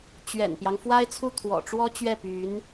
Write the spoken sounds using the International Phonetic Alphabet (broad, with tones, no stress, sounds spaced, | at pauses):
t͡ɕ ɥ ɛ̰˨˩ n p j ɑ˦ ŋ f w a˥ ɪ̯ t͡sʰ u˥˩ t̪ʰ w ɔ̰˨˩ ʈ͡ʂ w ɔ˥ t͡ɕ ɥ ɛ˥˩ p y˧˥ n